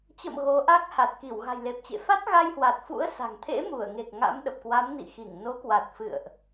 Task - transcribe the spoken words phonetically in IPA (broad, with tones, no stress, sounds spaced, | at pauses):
t͡ɕ ə̰˧˨ m ɣ o˨˦ ʔ a˦˥ k̚ h a˨˩ t̚ k i˧˩ w ɣ a̤˨˩ j l e˨˩ p̚ t͡ɕ ḛ˧˨ f a˦˥ t̚ ɣ a˧ j h w a˨˩ t̚ f ṵ˧˥ ə̯ s a̤˨˩ ŋ t̪ʰ ḛ˧˥ m u˧˩ ə̯ ŋ e˨˩ k̚ ŋ a̰˧˥ m ɗ ə˨˩ p̚ k w a˨˦ m n ḭ˧˨ x i˧˩ ŋ n o˨˦ k w a˨˩ t̚ f ɨ̰˧˨ ə̯ ʔ